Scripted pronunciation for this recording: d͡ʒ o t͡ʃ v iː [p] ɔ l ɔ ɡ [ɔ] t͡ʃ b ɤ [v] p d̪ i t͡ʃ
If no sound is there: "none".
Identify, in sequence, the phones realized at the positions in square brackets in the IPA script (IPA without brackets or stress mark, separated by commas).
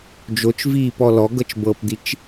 p, ɤ, none